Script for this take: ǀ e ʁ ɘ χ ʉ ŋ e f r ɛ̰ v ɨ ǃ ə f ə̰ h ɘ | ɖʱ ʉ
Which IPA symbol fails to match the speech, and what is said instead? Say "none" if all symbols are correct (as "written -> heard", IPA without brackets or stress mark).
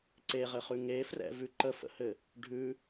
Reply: ɨ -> ʉ